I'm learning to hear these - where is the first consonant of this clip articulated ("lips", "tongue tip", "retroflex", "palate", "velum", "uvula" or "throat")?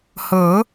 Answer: throat